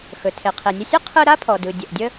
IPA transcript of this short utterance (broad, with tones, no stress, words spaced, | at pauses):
xɵ˩ tʰe˩qʰe˩nʲə˧sʲɯ˥ qʰɯ˥ ɾa˥pʰɔ˩dɯ˩ dʲə˩ʔdʲə˥